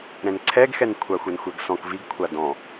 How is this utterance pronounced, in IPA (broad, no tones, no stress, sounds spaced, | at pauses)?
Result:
ɾ ɛ̃ n ǀʰ ɛ ɡ x ɛ n kʷʰ a xʷ ɛ n xʷ ɛ ɡ s ɔ̃ k v i ɡ kʷʰ a d ɔ̃